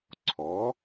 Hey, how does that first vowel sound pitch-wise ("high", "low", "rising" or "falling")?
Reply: rising